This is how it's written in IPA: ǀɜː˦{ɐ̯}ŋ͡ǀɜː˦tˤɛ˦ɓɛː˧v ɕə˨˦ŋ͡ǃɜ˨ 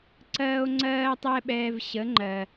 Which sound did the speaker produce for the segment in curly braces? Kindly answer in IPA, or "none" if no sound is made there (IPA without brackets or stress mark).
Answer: o̯